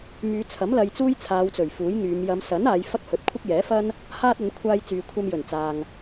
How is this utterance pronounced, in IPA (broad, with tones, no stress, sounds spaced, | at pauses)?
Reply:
m yː˨˧ t͡sʰ ɐ˨˥ m l ɐ˧ j t͡s uː˥ j t͡sʰ aː˨˧ w t͡s ɵ˨˩ ɥ f uː˨˥ j ŋ yː˨˧ m j ɐ˨˧ m s ɐ˨˥ n aː˨˧ j f ɐ˥ k̚ h ɵ˨˥ t̚ kʷʰ ɐ˥ k̚ j ɛː˨˥ f ɐ˥ n | h aː˥ t̚ ɐ˨˧ n kʷʰ aː˧ j t͡s yː˨ kʷʰ ɐ˧ m j ɵ˨˩ n t͡s aː˨ ŋ